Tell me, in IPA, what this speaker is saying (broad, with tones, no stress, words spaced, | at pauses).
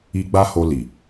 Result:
i˧ ɡ͡ba˦ho˧li˨